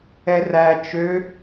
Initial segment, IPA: ɛ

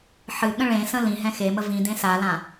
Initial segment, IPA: ħ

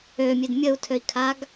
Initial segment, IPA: ø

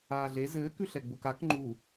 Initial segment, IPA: aː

